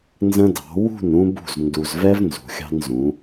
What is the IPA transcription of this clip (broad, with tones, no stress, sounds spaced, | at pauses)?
n z ə̃˦ d ɑ̤˨˦ w ṳ˦˨ n ũ˦ b ṳ˦˨ z n d u˨ z v ɛ˦ v n z ṳ˨ xʲ ɑ̤˦ n z ũ˨˦